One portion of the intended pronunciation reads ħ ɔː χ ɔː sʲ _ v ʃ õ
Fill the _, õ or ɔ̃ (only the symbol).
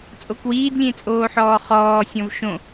ɔ̃